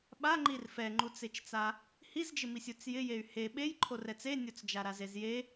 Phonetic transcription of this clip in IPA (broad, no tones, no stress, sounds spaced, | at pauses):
ɓ a ŋ͡ǃ i r f ɛ ŋ͡ǃ u t͡s e t͡ʃ t͡s a | h i z d͡ʒ ɪ m i sʲ u t͡s j ɪ j e y̯ h e ɓ e j ǃʰ o r ɛ t͡s e nʲ o t͡s d͡ʒ a ɾ a z e z j e